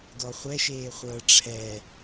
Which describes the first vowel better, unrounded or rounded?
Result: rounded